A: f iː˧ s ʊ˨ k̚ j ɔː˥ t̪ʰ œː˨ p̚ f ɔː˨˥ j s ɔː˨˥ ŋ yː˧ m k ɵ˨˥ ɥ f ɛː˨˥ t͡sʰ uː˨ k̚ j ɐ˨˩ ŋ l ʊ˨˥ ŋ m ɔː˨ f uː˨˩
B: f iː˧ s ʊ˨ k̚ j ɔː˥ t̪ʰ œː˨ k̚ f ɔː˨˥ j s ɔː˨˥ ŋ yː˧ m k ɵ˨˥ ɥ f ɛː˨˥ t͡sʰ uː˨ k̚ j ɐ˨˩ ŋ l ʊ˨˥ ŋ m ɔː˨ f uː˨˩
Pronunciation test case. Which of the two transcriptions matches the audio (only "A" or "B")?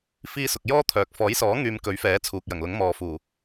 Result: B